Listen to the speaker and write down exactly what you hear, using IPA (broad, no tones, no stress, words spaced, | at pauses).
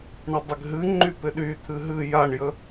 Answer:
ɳədˤɪɡ ɦɨ ŋ͡ǃypɪɗy t̪ʰɨɦɨ jaɳjə